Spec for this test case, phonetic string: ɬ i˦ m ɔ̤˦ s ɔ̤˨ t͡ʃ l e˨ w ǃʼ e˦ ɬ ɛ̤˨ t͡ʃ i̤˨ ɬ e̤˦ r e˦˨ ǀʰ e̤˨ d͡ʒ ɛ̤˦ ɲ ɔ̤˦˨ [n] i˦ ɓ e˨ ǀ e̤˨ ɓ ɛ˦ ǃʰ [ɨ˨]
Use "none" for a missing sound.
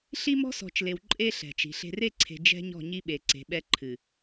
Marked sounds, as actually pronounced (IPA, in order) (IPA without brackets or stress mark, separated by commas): ɲ, ɨ˨